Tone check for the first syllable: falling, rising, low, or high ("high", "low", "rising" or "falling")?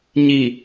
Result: low